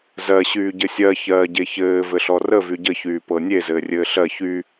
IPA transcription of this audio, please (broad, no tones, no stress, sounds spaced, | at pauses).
z ɜ ɕ yː ɟ ɘ sʲ ɜ ç ɜː ɟ e ç ɘː v ɘ ɬ ɔ r ə v y ɟ ə ç yː p ɤ nʲ e z ɘː rʲ ɘː ɬ ɜ ç y